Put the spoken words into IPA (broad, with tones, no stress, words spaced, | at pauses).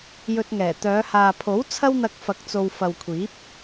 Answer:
jɵ˧t̚ŋɛː˨˩ t̪œː˨˧haː˨pʰo˨˥w t͡sʰɐ˥wn̪ɐ˧k̚fɐ˨˥k̚t͡so˨w fɐ˨wkʷʰiː˨˥p̚